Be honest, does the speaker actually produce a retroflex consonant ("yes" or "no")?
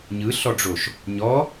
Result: yes